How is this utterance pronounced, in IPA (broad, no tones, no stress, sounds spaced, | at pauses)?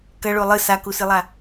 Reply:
k ɐ ɭ o lˠ ɨ s a k u s ɨ lˠ a